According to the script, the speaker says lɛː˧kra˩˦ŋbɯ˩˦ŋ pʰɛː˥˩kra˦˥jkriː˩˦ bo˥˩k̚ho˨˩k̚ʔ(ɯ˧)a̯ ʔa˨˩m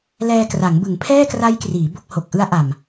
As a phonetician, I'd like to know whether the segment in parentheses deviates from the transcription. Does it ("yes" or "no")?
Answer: yes